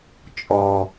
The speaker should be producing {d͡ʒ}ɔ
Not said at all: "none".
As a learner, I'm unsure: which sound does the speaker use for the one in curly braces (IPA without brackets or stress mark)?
t͡ʃʼ